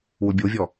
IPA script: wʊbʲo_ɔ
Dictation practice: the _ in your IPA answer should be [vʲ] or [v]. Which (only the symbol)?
vʲ